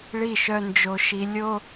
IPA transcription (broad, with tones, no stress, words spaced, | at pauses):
ɭi˦˨ʃœ˦nd͡ʒo˦ʃi˦ lʲo˦